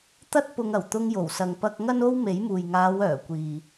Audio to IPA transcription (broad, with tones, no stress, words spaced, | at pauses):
t̪ɐ˥t̚pʊ˧ŋ ɐ˨˩wt̪ʊ˧ŋjo˨˩wsɐ˨ŋ pɐ˧k̚ ŋɐ˥no˥w me˨˥jmuː˨j ŋaː˨˧wœː˨˩ kʷiː˨